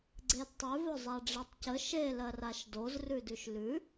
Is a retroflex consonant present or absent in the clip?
present